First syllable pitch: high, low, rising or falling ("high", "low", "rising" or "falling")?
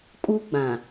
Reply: high